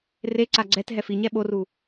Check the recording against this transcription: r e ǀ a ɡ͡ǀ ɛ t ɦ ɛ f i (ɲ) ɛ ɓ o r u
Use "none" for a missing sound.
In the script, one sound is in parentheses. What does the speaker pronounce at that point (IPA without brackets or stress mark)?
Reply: ɲ